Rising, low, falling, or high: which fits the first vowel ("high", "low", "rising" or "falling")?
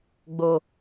low